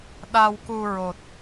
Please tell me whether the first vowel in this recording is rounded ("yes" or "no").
no